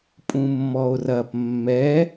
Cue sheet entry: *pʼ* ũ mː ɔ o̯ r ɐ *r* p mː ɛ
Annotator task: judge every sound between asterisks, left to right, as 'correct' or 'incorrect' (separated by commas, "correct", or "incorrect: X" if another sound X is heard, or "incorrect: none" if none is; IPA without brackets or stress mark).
correct, incorrect: none